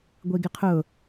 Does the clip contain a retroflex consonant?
no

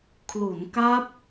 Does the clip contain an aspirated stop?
yes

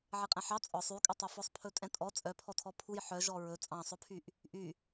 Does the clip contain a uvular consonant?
yes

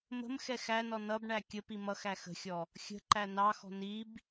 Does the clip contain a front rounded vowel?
no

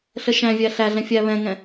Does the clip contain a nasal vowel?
yes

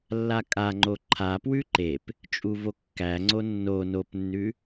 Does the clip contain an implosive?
no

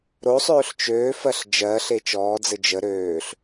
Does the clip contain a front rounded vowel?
yes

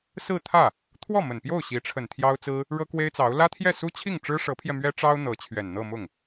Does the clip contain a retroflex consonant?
yes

